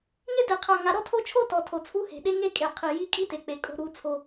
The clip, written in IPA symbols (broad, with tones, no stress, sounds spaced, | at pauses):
ŋ e˦ d e˨ qʰ a˨ ŋ a˨ ɾ ɔ˦ tʰ o˦ t͡ʃʰ o˦ t ɔ˨ tʰ o˨ t͡sʰ u˦ h e̤˨ ɗ e˦ ŋ e˦ kʼ e˨ qʰ i˨ j i˦ kʼ i˦ t e˨ k͡p e˨ kʼ o̤˦ ɾ u˦ t͡sʰ o˦